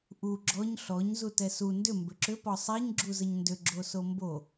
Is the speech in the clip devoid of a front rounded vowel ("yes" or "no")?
no